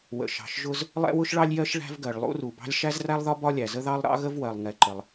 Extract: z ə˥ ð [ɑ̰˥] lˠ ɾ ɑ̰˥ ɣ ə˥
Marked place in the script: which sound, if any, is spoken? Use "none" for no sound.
ɑ˥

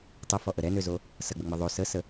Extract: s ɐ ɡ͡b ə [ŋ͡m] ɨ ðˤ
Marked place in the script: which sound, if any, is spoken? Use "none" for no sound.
ŋ͡m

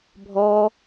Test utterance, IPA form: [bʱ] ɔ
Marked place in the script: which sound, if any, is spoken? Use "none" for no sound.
bʱ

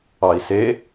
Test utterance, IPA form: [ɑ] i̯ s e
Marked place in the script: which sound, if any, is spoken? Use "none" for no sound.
ɑ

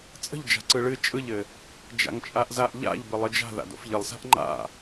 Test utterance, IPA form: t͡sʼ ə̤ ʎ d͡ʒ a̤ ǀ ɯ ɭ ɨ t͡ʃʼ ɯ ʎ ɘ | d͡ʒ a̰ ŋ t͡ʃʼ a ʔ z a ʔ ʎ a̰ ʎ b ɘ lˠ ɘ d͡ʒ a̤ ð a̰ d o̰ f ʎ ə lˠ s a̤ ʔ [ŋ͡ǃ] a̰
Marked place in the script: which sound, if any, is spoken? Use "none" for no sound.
ŋ͡ǃ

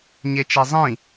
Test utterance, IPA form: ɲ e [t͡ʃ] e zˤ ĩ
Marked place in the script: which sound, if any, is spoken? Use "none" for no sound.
t͡ʃ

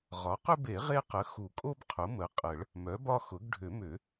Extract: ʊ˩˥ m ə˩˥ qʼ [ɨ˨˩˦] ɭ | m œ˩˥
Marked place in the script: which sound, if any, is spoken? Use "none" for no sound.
ə˨˩˦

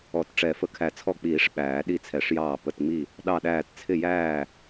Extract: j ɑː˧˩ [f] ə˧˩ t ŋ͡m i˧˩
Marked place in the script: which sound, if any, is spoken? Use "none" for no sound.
p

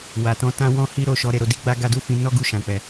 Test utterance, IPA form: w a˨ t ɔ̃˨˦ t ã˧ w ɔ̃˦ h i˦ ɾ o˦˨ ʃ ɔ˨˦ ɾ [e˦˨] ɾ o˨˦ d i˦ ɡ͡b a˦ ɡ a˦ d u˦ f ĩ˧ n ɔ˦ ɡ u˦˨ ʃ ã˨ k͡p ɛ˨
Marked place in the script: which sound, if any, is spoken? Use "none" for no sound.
e˦˨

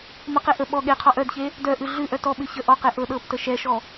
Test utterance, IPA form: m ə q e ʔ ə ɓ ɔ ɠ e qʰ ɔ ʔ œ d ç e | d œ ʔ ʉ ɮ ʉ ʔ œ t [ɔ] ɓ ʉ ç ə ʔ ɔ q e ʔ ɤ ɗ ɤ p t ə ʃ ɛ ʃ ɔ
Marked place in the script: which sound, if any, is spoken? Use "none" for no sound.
ɔ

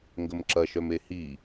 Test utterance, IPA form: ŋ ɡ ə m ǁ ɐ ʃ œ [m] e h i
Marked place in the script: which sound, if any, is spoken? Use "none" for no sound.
m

